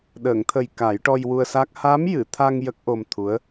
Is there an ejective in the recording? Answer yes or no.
no